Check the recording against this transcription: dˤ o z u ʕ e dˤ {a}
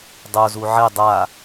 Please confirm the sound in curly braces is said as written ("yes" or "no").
yes